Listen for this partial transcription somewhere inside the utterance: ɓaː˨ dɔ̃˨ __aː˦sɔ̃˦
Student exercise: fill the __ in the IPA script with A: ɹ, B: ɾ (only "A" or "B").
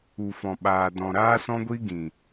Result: B